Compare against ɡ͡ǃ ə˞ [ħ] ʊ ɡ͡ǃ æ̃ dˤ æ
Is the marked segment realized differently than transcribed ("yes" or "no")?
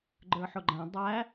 no